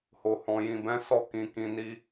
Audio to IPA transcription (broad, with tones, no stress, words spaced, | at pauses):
ho˨hɔ̃˨jĩ˨bɛ̃˨˦ sɔ˦˨kĩ˨kĩ˨ ni˧